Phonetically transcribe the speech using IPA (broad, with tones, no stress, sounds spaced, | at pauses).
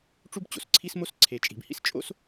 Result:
ʈ͡ʂ u˥ b t͡ɕ o̰˩ s ǀʰ i˥ s m o˥ s ǀʰ e˩ t͡ʃʼ i̤˩ b h ḭ˥ s t͡ʃʼ o̰˥ s